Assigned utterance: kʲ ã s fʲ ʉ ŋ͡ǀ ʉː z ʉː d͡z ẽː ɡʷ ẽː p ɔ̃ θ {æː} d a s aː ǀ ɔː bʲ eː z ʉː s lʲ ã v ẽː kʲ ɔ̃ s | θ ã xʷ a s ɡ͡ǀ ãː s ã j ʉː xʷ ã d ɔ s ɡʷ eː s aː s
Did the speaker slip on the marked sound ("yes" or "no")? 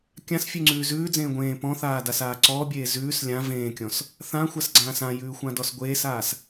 yes